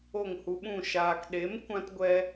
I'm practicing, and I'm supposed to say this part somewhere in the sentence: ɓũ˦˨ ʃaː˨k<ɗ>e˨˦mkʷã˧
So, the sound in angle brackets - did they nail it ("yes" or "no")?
yes